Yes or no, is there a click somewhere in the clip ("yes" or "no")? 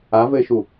no